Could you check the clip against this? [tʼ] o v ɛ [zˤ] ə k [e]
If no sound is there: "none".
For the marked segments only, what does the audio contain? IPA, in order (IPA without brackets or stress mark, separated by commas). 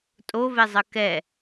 tʼ, zˤ, ɛ